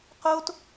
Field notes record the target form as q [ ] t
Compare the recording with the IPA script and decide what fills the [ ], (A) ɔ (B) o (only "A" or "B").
B